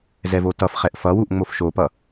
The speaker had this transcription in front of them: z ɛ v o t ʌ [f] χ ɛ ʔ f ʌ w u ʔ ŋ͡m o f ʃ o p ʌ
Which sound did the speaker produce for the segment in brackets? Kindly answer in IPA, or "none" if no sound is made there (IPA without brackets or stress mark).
f